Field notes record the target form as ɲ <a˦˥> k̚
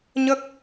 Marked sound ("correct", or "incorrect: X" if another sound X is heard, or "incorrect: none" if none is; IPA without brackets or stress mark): incorrect: ə˦˥